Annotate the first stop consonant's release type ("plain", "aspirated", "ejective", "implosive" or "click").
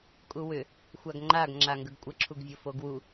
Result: ejective